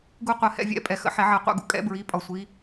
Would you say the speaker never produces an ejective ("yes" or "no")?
no